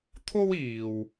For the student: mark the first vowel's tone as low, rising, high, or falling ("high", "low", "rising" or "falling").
high